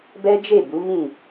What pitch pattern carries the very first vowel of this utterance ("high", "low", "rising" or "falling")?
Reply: high